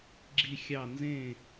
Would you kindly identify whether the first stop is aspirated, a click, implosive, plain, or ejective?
click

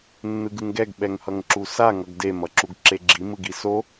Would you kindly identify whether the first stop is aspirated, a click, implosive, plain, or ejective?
plain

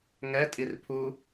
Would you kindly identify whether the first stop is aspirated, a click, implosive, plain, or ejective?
ejective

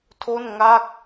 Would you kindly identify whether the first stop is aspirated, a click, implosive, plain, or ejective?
aspirated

